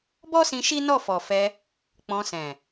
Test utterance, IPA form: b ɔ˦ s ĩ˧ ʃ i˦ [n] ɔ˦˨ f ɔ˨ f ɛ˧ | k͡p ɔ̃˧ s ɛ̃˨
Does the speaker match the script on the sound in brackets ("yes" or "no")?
yes